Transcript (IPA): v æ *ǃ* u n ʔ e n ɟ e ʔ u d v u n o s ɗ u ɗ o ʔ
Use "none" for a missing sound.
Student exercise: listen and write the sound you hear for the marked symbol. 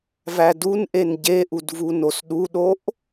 d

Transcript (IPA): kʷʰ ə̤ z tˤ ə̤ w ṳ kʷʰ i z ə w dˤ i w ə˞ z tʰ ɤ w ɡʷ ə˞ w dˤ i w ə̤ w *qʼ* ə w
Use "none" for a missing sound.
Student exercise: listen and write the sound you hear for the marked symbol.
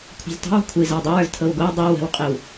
qʼ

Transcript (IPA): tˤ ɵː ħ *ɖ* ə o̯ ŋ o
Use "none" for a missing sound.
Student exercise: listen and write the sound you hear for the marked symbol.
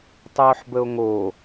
b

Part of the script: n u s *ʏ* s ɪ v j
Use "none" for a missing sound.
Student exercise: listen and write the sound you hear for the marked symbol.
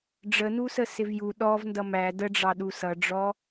ə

